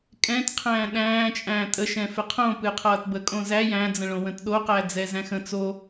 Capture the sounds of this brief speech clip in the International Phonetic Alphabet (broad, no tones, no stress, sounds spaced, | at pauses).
kʼ ɛ̃ t qʰ æ̃ː ɗ æ̃ː t͡ʃʼ æ̃ː tʼ ə ʃ ɛ̃ f ɪ qʰ õ p ɨ qʰ ʌː t b ə kʼ õ z æ j æ̃ d͡z ə̃ ɭ õ w ə̃ t ɗ o q æ d͡z ɛ z æ̃ x ə̃ t͡s o